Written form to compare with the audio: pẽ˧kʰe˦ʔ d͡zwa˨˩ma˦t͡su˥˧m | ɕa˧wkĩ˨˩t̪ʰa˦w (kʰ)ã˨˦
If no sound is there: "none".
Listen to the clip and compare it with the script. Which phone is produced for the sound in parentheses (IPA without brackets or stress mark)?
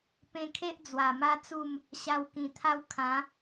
kʰ